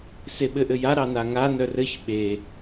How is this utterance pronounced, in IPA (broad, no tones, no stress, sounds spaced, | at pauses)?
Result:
s e ɓ ɘ ʔ ɘ j a ɾ ɑ n a ŋ a n œ r ɘ ç ɓ e